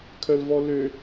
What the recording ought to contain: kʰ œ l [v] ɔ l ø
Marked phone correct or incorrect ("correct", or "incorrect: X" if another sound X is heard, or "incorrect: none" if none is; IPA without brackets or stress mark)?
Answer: correct